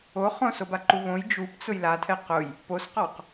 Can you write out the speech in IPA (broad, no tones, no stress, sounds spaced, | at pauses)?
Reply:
o χ õ s o b a ǃ u β õ j d͡ʒ u p t͡s ʊ j l a tʰ ɛ q ʊ j | p o s q ɔ q